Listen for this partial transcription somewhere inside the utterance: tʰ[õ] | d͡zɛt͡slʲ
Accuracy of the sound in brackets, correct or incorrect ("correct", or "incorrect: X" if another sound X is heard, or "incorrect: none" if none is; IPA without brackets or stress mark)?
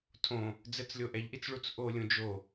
correct